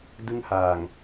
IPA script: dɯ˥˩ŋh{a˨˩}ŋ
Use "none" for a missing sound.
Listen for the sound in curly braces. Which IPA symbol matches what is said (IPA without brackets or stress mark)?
aː˨˩